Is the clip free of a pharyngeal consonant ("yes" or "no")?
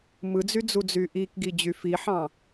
no